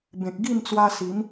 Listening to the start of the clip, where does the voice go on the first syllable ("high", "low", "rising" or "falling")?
low